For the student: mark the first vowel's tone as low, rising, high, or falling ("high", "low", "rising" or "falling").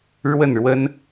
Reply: falling